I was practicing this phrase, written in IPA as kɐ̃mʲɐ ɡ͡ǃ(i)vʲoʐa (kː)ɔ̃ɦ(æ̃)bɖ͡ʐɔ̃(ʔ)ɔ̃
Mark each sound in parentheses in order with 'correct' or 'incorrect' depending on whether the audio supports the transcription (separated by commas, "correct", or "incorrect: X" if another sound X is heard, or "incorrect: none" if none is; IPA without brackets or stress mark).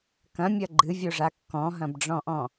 incorrect: ɨ, correct, incorrect: ɐ̃, correct